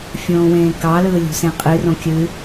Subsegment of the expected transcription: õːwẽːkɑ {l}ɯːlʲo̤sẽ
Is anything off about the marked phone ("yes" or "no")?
no